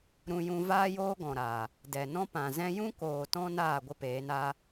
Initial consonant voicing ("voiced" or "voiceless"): voiced